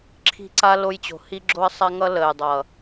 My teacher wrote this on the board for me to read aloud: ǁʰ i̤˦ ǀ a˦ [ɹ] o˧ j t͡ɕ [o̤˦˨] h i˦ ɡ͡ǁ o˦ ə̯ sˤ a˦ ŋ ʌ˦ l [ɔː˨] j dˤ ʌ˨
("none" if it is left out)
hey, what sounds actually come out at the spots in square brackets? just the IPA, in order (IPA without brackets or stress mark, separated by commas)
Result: l, o̤˨, əː˨